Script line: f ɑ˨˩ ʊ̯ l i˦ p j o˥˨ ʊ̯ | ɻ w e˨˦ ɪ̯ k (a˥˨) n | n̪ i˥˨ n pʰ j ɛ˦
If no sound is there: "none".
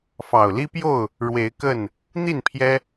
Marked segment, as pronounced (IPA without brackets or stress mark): ə˥˨